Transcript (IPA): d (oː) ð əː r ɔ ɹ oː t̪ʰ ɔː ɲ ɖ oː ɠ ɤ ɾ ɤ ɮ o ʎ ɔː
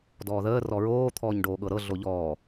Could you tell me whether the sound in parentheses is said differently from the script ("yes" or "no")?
yes